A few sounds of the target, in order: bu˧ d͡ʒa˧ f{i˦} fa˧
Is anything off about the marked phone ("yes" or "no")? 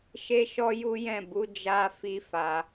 no